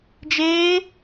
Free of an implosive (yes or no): yes